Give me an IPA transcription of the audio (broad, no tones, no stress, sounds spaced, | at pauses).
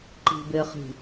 ǃ i̤ b e χ i̤